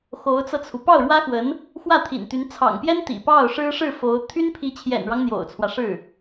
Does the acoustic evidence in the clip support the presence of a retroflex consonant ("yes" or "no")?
yes